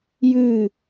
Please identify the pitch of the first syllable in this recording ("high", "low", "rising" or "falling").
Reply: falling